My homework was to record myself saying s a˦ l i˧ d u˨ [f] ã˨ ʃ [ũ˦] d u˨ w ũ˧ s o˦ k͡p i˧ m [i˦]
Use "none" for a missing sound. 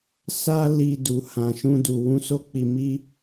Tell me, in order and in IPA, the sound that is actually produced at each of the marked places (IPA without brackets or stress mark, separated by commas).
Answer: h, ũ˧, i˦